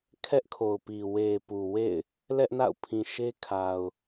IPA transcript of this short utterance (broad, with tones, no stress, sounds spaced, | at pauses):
kʰ ɛ˦ ʔ kʰ o˨ ʊ̯ p i˨ w e˨ p u˨ w ḛ˦˨ ɪ̯ | l ɛ˦ ʔ n a̰˦˨ ʊ̯ pʰ ĩ˨ ʃ e˦ kʰ a˨ ʊ̯